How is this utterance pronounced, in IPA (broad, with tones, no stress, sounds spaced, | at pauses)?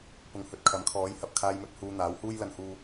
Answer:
p ʊ˨ ŋ h ɵ˨ t̚ kʰ ɐ˨˥ m kʰ ɔː˨˥ j h ɐ˨ p̚ kʰ aː˧ j m ɵ˧ t̚ h uː˧ n̪ aː˨˥ w h uː˥ j l ɐ˧ n h uː˧